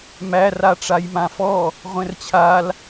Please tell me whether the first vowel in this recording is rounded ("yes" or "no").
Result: no